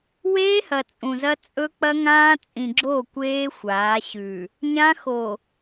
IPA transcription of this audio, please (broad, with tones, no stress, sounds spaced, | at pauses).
w eː˦ h ɐ˨ t͡sʼ ũ˨ z ɐ˦ t͡sʼ ɵ˦ k͡p ɐ˦ ŋ ãː˦ t͡sʼ ĩ˨ ɡ͡ǁ o˦˨ kʷ eː˦ xʷ aː˨˦ ɕ ʉ˨ | ɲ ã˦ x o˨